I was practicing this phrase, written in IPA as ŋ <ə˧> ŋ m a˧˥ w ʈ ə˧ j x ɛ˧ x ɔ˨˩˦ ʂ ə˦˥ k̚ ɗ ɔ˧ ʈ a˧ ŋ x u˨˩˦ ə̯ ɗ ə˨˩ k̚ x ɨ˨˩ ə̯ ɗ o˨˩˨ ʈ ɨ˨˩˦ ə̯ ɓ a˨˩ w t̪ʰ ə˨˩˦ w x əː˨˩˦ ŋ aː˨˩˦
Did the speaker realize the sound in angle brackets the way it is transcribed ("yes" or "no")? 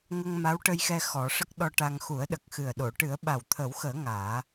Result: yes